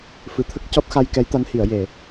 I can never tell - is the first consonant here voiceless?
yes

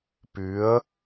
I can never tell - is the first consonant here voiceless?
yes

